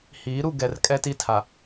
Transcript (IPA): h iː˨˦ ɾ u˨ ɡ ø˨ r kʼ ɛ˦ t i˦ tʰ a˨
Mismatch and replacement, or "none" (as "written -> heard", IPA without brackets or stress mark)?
ø˨ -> ɛ˨